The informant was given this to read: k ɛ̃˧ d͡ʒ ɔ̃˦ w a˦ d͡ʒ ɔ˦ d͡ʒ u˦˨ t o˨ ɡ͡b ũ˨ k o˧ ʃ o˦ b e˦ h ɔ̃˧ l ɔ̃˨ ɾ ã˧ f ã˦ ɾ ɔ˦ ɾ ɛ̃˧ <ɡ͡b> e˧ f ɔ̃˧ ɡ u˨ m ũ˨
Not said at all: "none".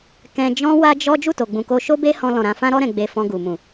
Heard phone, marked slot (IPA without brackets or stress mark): ɡ͡b